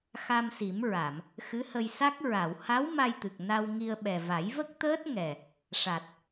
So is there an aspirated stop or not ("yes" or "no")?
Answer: no